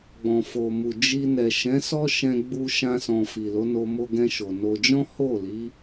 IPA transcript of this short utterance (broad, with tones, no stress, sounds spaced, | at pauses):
ɡ͡b ɔ̃˨ f o˨ m u˨ d͡ʒ i˧ n ɛ˨ ʃ ɛ̃˨˦ s ɔ˦ ʃ ɛ̃˧ ɡ͡b u˧ ʃ ã˧ s ɔ̃˨ f i˨ l o˨˦ n o˧ m o˧ ɡ ɛ̃˧ ʃ o˨ n o˧ d͡ʒ ɔ̃˦ h o˦˨ l i˨˦